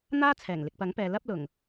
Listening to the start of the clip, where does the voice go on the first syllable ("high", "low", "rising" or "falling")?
high